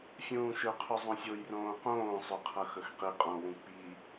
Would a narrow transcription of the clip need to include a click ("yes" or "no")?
no